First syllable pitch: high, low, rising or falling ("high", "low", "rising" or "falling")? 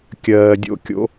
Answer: low